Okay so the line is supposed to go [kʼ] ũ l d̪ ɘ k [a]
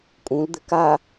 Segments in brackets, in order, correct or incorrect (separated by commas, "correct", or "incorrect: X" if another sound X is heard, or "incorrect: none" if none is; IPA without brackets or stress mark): correct, correct